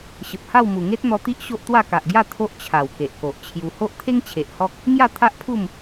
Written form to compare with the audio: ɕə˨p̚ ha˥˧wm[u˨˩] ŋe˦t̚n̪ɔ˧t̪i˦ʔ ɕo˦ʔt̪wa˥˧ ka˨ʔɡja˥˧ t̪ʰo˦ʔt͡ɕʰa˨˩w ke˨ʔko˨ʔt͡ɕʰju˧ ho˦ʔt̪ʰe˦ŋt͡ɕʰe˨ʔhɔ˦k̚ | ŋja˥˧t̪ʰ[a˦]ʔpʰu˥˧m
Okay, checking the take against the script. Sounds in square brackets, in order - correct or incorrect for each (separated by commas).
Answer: correct, correct